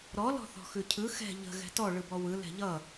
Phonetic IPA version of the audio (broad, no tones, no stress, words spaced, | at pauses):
ɾɔ lɔ̤θɔ̤xʉcʰɯ xɛ̤ ʎə̤ ɣɛ̤tɔ ɭɯbɔwɯ lɛ̤ʎʌ